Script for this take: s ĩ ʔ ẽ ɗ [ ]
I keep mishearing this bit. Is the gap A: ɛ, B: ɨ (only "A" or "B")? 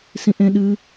B